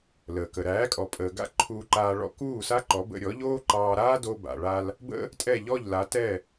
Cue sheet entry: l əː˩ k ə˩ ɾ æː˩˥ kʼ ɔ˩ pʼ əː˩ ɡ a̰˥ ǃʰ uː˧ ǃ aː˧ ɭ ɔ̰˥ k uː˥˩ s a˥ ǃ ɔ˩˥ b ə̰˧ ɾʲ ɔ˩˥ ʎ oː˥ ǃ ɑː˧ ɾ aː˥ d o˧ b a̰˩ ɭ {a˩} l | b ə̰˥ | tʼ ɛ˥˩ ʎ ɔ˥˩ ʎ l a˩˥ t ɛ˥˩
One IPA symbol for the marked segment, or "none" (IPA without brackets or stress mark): a˧